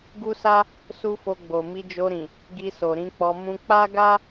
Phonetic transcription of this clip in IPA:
ɡ u˦ s a˦ | s u˦ f o˧ ɡ͡b o˨ m i˧ d͡ʒ o˧ ɾ ĩ˨ | ɡ i˧ s o˨ ɾ ĩ˨˦ k͡p ɔ˧ m ũ˦ k͡p a˦ ɡ a˦

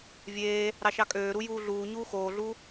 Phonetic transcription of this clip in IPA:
vʲ eː | ɾ ɑ ʃ ɑ kʼ øː ɾ u j uː ɮ uː ɲ uː x oː ɮ u

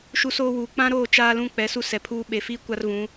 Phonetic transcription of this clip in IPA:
ʃ u˦ s oː˦ w uː˨ k͡p ã˦ ɾ oː˦˨ t͡ʃ aː˦ l ũ˦ k͡p ɛ˨˦ s u˦ s ɛ˨ pʰ uː˦ ɓ e˨ f iː˦ kʷ a˦ r v ũ˨˦

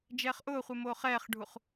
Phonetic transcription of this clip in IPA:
d͡ʒ ɛː χ ʔ ʊː χʷ e m oː χ ɛː χ ɖʱ u χ

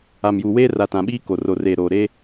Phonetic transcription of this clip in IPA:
a˨ m j u˨ w eː˦ r a˨ t ã˨ ɓ iː˦ k o˨ r o˨ r eː˨ ɾ oː˨ ɾ eː˦

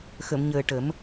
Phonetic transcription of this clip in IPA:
x ə˨˩˨ m ɲ əː˨˩ ʈ ə˨˩˦ m

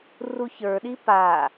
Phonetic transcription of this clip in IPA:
r u ç ə˞ ɗ i p a

